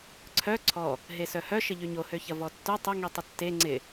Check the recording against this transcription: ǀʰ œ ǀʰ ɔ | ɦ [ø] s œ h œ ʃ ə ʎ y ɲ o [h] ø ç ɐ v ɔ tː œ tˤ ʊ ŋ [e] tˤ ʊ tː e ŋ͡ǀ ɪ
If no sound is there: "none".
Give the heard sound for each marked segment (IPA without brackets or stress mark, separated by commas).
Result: e, h, i